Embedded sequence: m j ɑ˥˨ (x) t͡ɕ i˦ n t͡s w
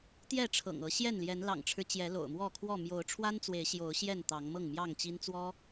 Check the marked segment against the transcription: incorrect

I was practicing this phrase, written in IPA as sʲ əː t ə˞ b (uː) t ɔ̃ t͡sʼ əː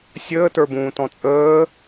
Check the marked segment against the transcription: incorrect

